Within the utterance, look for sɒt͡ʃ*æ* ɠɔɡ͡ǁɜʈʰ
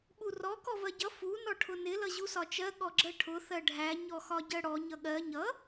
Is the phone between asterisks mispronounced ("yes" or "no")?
yes